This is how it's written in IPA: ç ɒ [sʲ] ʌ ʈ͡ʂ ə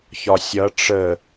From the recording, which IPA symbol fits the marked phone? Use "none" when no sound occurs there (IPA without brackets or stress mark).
sʲ